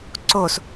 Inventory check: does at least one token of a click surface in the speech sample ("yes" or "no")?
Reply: yes